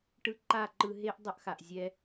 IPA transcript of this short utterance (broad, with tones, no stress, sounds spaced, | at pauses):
ʈ ɯ˧ ǃ a˦˨ ǃ ɯ˧ ɦ e˦ ʔ dˤ ʌ˦ ʔ x a˨ ʔ zʲ ɛ˧